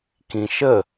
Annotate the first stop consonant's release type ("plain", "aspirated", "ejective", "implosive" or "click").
plain